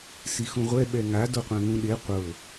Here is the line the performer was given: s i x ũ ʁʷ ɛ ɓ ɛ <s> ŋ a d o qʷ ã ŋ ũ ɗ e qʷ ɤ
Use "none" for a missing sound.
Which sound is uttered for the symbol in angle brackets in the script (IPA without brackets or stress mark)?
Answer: none